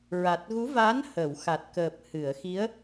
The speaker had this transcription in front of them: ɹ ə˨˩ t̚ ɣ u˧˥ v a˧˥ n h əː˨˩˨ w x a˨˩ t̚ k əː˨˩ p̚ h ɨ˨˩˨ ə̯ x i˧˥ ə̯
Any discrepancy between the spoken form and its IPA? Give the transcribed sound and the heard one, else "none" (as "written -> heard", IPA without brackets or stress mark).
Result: ə˨˩ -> a˨˩